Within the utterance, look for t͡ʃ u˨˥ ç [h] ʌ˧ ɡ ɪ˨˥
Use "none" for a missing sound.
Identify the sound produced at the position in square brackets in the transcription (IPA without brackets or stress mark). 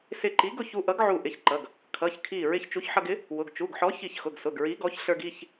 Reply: ħ